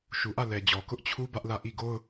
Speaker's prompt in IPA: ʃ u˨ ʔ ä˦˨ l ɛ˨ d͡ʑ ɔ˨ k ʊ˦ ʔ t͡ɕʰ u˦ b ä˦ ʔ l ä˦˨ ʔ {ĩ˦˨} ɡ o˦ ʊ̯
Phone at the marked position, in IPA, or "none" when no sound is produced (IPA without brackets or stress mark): i˦˨